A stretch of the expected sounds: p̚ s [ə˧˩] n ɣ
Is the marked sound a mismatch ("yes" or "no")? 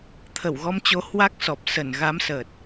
no